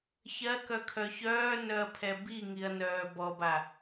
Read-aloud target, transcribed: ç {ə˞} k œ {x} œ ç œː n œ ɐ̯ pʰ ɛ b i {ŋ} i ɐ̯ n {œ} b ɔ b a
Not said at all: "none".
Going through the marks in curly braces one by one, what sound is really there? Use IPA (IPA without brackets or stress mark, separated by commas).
ɜ, kʰ, ŋ, œː